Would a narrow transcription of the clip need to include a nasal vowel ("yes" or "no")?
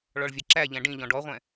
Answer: yes